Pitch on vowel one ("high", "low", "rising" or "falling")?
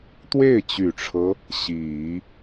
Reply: falling